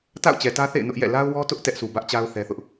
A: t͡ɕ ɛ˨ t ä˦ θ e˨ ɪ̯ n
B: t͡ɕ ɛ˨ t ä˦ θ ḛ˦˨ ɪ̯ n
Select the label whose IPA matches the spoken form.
B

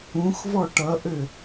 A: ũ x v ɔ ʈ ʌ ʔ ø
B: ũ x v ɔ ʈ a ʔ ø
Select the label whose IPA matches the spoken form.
A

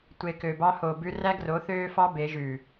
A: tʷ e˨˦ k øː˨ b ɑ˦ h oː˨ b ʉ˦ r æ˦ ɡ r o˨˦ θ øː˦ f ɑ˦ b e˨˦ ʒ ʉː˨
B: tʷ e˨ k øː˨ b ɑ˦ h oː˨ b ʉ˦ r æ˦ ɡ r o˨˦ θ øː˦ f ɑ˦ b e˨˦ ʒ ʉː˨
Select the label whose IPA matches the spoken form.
B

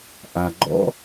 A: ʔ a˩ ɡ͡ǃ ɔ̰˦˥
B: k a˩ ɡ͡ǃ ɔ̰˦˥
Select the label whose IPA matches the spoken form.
A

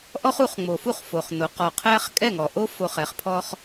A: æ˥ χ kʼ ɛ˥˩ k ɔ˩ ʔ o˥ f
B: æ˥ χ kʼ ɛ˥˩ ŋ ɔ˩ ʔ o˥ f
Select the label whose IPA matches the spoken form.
B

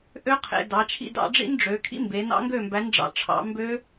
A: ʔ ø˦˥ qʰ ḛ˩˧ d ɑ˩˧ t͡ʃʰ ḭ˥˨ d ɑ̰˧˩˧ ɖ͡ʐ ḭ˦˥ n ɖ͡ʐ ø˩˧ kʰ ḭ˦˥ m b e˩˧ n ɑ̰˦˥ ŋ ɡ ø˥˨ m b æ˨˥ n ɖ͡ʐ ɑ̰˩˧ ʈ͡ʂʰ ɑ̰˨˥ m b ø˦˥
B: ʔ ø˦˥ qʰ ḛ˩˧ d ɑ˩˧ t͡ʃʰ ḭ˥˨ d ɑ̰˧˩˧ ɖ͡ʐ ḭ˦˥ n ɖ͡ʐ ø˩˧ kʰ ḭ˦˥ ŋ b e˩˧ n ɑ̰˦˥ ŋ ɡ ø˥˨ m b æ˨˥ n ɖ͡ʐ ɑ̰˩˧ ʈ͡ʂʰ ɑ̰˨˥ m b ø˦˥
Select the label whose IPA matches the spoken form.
A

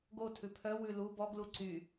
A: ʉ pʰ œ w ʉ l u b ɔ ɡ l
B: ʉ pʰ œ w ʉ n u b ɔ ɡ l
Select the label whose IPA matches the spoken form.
A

